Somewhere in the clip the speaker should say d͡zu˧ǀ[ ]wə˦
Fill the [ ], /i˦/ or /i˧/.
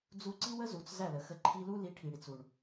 i˦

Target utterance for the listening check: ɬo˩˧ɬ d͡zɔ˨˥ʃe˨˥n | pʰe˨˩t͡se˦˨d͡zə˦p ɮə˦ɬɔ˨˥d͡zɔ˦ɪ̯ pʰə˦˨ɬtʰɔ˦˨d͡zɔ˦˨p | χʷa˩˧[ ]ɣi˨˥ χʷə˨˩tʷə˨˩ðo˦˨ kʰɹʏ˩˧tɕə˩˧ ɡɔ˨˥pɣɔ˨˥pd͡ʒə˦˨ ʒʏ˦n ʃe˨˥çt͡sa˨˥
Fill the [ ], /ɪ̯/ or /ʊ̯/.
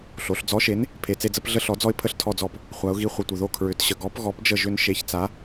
ʊ̯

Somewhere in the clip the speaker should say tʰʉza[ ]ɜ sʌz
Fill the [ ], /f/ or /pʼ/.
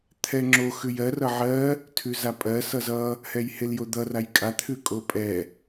pʼ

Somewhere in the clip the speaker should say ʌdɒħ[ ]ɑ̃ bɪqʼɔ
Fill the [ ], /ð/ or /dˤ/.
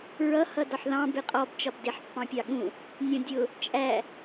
ð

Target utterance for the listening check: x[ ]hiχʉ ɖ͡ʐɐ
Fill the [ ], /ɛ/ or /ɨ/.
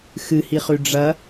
ɨ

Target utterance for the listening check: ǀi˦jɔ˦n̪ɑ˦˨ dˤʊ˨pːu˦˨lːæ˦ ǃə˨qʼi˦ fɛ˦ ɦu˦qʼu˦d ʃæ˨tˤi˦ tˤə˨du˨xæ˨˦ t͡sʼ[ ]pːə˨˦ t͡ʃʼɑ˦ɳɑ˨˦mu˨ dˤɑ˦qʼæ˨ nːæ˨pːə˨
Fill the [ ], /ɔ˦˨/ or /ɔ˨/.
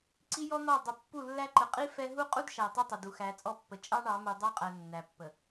ɔ˦˨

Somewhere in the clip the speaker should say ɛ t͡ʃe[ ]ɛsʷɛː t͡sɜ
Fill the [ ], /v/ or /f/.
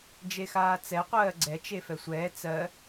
f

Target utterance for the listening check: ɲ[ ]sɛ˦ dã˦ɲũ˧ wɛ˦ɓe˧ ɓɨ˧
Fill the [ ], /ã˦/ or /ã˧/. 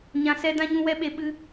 ã˧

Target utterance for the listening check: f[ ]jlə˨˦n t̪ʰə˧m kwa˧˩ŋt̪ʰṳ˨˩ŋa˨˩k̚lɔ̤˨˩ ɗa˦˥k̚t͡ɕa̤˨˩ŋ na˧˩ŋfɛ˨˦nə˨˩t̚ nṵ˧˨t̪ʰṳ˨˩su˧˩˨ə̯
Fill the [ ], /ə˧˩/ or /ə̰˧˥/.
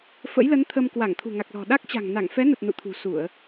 ə̰˧˥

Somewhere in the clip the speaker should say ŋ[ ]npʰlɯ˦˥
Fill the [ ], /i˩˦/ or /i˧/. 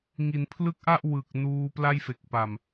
i˩˦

